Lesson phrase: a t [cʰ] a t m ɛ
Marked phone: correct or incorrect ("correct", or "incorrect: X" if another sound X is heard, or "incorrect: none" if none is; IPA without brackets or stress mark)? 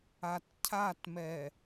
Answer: correct